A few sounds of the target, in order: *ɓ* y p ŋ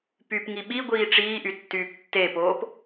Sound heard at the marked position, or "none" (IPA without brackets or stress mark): p